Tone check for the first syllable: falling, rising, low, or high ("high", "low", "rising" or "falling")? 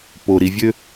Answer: low